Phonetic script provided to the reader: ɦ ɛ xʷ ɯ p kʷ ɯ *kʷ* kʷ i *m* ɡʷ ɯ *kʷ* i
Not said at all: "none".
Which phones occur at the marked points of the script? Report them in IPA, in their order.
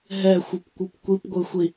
p, p, xʷ

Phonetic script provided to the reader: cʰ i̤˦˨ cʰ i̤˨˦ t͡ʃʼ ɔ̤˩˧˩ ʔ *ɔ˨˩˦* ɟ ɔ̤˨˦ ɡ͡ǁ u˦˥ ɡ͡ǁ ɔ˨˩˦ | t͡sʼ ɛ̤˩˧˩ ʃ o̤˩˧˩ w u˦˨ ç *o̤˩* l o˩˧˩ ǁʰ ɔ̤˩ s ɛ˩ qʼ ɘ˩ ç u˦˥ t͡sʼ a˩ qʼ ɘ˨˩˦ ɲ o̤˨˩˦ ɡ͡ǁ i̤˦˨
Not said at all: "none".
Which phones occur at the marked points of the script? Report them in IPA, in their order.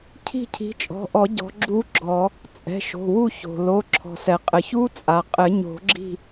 ɔ˨˩˦, o̤˩

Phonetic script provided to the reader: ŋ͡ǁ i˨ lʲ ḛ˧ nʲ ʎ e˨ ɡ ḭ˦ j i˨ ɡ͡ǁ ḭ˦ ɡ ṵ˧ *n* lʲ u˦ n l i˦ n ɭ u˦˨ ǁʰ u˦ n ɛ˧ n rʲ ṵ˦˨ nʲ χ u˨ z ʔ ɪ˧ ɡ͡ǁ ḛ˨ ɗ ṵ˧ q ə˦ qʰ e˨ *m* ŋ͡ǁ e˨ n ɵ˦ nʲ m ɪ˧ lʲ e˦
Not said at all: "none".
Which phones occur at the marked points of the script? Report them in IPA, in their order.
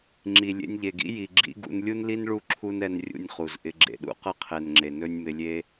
n, n

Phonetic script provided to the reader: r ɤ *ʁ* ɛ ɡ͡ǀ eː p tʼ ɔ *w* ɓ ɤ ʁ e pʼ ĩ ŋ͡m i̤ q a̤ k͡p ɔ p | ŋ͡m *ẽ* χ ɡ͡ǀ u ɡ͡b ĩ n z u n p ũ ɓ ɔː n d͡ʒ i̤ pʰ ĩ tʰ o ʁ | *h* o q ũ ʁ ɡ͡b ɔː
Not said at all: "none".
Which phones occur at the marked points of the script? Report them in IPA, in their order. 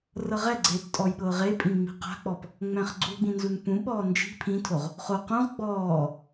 ʁ, j, ɛ̃, χ

